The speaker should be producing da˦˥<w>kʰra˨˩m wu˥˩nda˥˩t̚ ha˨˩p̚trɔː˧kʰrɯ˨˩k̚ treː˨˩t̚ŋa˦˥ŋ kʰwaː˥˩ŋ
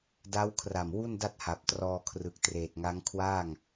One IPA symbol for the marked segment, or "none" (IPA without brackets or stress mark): w